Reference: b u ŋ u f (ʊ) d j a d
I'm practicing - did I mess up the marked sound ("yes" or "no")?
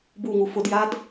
no